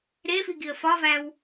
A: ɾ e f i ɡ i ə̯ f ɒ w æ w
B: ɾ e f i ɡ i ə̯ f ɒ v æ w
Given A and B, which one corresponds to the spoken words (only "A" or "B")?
B